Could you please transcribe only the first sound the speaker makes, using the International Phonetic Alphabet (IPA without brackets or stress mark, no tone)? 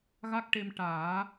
ɣ